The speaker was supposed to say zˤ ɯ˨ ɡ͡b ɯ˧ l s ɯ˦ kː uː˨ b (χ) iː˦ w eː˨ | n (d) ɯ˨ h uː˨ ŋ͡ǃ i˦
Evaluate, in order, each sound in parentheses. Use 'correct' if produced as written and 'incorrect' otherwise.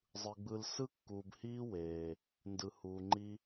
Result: incorrect: h, correct

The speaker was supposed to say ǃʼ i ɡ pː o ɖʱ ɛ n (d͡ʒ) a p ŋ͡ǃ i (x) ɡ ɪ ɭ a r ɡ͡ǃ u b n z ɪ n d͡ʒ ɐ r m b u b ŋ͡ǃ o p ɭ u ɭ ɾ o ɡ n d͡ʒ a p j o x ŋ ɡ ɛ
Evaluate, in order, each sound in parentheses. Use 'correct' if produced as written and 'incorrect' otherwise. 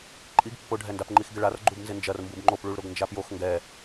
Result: incorrect: d, correct

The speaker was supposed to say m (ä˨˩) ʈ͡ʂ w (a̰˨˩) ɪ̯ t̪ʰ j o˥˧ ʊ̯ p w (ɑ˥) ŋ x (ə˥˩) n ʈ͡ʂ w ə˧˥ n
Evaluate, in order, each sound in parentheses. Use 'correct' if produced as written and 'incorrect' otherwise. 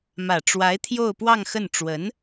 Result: correct, incorrect: a˧˥, incorrect: ɑ˥˧, correct

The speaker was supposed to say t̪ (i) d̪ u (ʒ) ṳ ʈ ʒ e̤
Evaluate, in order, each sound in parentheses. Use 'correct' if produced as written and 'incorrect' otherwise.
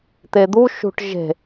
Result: incorrect: e, incorrect: ʃ

